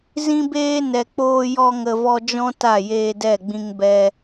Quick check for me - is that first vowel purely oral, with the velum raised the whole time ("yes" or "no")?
no